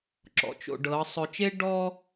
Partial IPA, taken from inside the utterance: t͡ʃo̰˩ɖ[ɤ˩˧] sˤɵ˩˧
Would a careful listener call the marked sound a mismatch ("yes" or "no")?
no